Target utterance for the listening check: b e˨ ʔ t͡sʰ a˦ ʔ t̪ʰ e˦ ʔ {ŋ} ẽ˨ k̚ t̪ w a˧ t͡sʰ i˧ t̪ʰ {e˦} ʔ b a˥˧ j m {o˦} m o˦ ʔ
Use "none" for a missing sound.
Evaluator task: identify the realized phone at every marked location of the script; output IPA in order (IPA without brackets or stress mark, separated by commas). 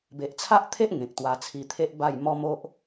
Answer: ŋ, e˦, ɔ˦